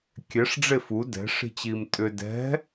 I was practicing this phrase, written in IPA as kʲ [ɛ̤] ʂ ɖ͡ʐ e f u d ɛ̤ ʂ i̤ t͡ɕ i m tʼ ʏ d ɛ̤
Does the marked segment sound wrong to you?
yes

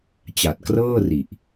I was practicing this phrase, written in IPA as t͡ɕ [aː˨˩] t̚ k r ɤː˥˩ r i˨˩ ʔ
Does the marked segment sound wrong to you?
yes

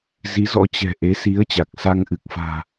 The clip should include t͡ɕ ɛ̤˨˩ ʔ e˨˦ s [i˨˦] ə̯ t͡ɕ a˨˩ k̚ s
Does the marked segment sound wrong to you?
no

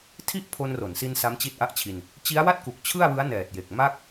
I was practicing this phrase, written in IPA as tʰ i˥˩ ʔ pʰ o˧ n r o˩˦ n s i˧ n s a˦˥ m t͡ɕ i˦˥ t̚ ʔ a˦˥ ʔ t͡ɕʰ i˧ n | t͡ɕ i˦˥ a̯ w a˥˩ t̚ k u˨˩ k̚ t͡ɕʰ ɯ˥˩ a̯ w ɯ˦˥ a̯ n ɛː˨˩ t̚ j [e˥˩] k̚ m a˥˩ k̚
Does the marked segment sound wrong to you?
yes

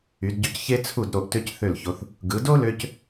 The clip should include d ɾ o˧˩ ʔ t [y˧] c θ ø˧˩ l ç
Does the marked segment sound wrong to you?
yes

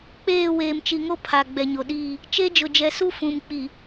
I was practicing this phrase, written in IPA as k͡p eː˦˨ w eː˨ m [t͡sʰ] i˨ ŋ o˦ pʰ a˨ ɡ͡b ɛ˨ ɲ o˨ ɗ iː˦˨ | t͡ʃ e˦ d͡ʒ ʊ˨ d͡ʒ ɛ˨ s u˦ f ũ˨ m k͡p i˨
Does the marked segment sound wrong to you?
yes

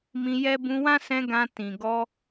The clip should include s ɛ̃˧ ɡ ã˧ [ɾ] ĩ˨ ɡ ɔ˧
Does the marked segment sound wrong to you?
yes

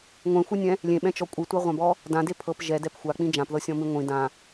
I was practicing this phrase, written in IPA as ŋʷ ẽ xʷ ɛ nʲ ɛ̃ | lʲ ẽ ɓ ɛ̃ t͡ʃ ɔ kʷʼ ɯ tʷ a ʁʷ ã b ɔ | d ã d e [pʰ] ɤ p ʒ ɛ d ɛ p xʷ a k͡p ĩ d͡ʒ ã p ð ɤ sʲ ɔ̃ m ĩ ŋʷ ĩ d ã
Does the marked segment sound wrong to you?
no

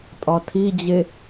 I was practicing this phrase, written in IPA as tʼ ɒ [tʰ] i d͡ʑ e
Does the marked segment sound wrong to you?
no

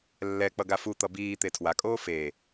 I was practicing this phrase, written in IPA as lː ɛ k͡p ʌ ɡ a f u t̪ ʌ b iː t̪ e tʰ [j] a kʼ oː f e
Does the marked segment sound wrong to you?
yes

